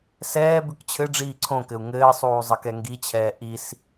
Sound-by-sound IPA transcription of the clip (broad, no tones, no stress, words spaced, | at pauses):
sɛː bʉkt͡ɕʰɘɖ͡ʐiː ǀʰõkɘu̯ ŋɘːsˤuː zˤɘkɛŋɡit͡ɕʰɛː ʔis